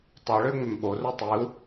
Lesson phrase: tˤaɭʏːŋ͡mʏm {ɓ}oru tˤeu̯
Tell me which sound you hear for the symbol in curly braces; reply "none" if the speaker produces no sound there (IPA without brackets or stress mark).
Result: ɓ